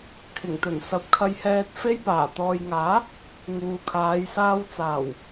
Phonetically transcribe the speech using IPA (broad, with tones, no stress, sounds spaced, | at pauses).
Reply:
kʰ ɪ˨˩ ŋ t̪ ɵ˨˩ n s ɐ˨˥ p̚ kʰ ɐ˧ j h ɛː˧ t̚ f e˧ j p aː˨˩ t̪ ɔː˨ j ŋ aː˨˥ | ŋ uː˨ kʰ aː˨˧ j s aː˧ w t͡s aː˨˩ w